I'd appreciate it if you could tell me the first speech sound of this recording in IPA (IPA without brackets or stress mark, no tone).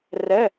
r